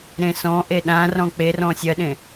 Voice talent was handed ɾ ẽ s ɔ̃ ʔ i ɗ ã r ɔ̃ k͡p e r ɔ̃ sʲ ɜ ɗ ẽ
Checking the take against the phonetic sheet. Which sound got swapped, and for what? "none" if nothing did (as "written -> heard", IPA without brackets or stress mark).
i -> e